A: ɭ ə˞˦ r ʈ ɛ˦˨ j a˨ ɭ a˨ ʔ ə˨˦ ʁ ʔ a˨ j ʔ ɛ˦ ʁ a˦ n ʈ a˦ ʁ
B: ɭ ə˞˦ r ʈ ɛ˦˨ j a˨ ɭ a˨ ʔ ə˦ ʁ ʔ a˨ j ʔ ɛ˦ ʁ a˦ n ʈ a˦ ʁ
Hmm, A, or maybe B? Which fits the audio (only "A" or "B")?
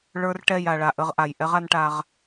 B